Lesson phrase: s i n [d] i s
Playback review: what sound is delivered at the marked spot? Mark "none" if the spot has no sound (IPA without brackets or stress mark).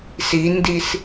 d